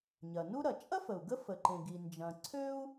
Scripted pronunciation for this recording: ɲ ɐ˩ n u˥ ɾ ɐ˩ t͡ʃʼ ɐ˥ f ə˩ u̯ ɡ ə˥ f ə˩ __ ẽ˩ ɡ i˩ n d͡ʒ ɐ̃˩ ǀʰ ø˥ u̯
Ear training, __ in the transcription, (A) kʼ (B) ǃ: B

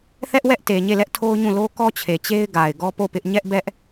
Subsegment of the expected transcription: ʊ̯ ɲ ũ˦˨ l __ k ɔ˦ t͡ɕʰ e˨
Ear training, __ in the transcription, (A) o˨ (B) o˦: B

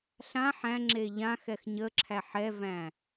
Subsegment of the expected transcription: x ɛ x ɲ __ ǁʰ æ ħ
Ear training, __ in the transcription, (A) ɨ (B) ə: B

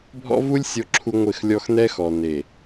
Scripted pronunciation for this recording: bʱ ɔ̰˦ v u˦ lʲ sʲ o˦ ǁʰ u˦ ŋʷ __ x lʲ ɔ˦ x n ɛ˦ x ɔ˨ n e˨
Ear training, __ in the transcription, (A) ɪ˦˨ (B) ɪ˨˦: A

